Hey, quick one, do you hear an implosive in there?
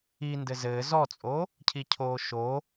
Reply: no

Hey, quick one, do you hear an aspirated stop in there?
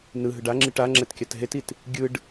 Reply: no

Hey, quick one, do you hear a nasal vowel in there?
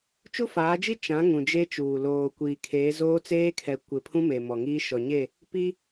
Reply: yes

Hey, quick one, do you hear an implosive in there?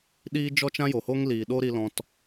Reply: yes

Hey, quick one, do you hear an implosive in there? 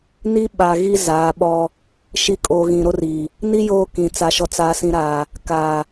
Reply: yes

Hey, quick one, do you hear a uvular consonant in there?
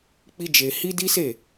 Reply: no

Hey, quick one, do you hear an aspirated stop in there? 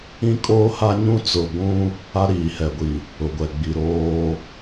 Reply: no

